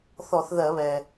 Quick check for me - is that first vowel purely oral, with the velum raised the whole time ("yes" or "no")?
yes